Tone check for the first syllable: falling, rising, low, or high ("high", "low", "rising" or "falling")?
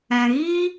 low